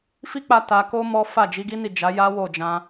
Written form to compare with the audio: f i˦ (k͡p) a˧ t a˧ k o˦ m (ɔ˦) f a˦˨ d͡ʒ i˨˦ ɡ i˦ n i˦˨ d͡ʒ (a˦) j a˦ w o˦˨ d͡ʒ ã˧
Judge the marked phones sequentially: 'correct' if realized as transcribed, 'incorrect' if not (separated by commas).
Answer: correct, correct, incorrect